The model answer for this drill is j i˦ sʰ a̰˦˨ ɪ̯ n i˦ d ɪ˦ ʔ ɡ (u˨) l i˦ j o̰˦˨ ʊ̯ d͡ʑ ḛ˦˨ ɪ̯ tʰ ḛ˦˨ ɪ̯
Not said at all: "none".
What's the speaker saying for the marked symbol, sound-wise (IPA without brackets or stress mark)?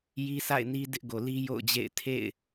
o˨